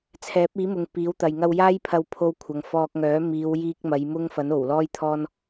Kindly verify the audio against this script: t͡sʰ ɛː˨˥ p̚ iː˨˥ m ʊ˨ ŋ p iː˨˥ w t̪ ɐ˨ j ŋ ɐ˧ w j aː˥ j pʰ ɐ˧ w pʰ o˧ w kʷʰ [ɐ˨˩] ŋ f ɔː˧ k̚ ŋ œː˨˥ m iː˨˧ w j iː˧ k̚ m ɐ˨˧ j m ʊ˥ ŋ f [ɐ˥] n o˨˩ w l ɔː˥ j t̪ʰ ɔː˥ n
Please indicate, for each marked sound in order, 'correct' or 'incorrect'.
incorrect: ɐ˨˧, incorrect: ɐ˨˥

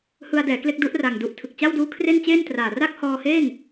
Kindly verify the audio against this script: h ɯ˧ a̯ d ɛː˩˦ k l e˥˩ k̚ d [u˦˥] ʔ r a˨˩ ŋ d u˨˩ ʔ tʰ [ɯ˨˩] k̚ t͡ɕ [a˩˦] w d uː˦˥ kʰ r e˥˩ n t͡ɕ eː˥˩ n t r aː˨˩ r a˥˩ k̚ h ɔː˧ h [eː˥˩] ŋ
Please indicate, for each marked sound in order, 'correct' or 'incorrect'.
correct, correct, incorrect: a˥˩, correct

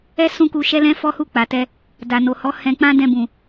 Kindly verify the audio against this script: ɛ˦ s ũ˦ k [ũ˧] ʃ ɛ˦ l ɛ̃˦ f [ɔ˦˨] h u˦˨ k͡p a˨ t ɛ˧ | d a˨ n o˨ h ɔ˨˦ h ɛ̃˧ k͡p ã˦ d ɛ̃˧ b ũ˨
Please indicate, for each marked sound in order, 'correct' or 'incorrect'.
incorrect: u˧, incorrect: ɔ˦

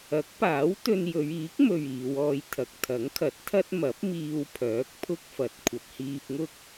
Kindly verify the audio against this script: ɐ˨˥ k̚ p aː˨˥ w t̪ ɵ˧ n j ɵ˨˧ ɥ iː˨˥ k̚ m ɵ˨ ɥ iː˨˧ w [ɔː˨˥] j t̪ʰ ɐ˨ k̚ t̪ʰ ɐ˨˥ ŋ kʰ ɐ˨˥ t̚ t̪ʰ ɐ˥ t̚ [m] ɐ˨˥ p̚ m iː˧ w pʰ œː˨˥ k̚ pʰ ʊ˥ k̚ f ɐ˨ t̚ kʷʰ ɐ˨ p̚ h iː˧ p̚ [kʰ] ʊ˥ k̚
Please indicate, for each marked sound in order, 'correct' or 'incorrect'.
incorrect: ɔː˧, correct, incorrect: ŋ

